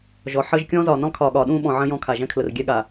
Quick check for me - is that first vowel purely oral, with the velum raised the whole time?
yes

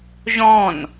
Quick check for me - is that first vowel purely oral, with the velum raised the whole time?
no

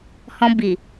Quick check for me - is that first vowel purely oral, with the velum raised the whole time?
no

